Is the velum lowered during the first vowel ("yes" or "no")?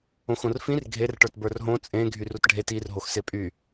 yes